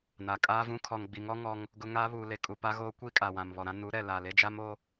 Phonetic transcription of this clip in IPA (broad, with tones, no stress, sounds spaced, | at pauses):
n a˨ kʼ aː˦ v ũ˦ kʰ ɔ˨ ŋ ɡ͡b i˨ ŋ ɔ˦ ŋ ɔ˦ ŋ | ɡ ʊ˦ ŋ a˦ β uː˨ l e˨ kʼ u˨ p a˦ ɣ oː˦ kʷ i˦ kʼ a˨ w ã˨ m β ɔ˨ ɾ ã˦ n u˨˦ ɾ ɛ˨ l aː˨ l e˦ d͡ʒ a˦ m o˦